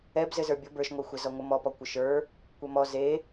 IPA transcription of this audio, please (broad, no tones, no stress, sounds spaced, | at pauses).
ɛ b z ɘ z ə˞ bʲ o b ə˞ ʃ ŋʷ e xʷ ɛ z ɔ ŋʷ ə m ɔ p ɔ kʷ ɘ ʃ ə˞ | kʷ ɛ m ɔ z e